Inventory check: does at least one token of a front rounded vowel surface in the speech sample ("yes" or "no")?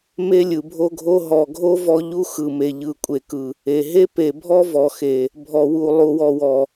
no